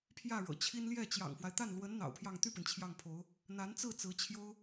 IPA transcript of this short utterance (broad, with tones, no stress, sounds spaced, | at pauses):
pʰ j ä˥˩ ɻ ɤ̰˨˩ t͡ɕʰ i˥ n l j ɛ˥˩ t͡ɕ j ɑ̰˨˩ ŋ f w a˦ ɪ̯ t̪ a˥˩ n l w ə˧˥ n n̪ ɑ̰˨˩ ʊ̯ pʰ j ɑ˥˧ ŋ t̪ y˥˩ p i˩ n t͡ɕʰ j ɑ˥˩ ŋ pʰ o˧˥ ʊ̯ | n̪ a˧˥ n t͡s ɹ̩˥˩ t͡s ɹ̩˧˥ t͡ɕʰ j o˥ ʊ̯